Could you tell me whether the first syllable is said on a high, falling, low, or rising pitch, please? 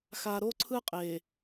low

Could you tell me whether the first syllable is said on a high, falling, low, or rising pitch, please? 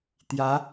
rising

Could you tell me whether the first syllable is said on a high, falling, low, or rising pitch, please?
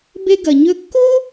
high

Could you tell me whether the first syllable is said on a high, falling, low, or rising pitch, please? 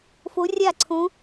rising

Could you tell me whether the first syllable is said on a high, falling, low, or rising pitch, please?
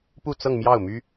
falling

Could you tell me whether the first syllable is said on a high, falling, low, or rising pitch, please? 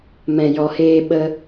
low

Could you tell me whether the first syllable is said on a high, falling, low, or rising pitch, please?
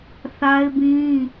high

